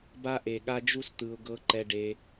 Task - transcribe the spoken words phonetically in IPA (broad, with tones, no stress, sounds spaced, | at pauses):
b a˦ ʔ e˨ ɠ a˦ d͡ʒ u˦ s t̪ ɯ˧ ʊ̯ ɡ ɤ˦ ǃ ɛ˧ ɖ e˧